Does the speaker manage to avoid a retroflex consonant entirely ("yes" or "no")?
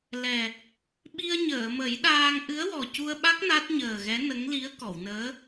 yes